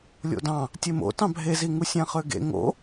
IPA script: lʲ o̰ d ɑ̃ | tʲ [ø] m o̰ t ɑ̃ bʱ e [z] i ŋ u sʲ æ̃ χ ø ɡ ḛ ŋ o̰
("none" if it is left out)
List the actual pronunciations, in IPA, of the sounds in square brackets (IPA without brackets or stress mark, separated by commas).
e, z